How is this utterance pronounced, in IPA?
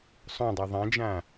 sˤ õ dˤ ɤ ðˤ ã d͡ʒ ã

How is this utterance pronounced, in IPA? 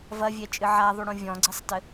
v ɐ vʲ ɛ t͡ʃʼ ɨ ʕ a ðˤ u ɽ õ vʲ ɔ̃ ɡ͡ǀ i sˤ t ɘ

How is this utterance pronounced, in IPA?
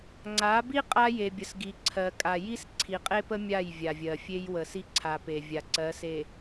ŋ͡ǀ a˨˦ b i˦ qʼ a˦ j e˨ bʲ ə˨ s ɡ i˨ ǀʰ ɜ˨ kʼ a˨ j i˦ s ǀʰ i˨ qʼ e˦ p ə˦ mʲ a˦˨ j vʲ a˨ vʲ ɜ˨ fʲ e˦ j w ə˨ s i˦ ǀʰ a˨ p e˨ vʲ a˨ ǀ ɜ˨˦ s e˨

